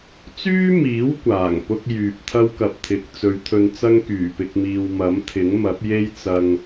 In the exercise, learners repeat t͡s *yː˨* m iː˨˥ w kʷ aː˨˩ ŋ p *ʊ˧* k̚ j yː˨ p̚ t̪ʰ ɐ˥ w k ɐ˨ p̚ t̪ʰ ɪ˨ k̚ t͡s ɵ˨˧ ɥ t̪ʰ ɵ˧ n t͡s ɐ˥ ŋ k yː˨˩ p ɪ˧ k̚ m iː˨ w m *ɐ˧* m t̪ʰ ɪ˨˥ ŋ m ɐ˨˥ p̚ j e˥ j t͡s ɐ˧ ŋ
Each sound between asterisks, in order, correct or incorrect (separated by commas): incorrect, incorrect, incorrect